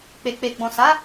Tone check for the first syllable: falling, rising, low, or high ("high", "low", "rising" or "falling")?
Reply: low